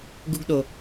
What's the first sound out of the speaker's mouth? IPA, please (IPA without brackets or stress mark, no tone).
ɡ